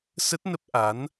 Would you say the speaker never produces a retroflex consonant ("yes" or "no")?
yes